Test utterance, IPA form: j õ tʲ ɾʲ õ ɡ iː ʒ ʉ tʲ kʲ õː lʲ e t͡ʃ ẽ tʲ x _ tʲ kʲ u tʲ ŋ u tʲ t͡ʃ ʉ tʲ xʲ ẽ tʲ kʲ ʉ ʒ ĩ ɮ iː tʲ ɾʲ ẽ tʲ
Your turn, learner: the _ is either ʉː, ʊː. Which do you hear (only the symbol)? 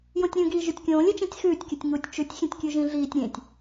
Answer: ʉː